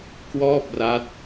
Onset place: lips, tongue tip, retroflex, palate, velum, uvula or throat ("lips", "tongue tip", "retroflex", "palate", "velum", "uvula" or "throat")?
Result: velum